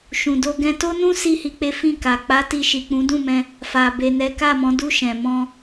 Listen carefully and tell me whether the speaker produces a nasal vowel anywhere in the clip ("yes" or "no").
yes